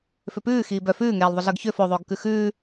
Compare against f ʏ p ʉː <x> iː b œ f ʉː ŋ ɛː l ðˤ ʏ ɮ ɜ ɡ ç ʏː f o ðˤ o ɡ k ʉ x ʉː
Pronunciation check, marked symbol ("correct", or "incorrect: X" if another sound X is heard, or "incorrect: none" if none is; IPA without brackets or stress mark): correct